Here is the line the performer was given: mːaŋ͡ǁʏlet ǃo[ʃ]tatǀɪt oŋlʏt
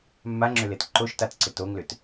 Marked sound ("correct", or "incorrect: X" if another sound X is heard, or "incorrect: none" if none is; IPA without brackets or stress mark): correct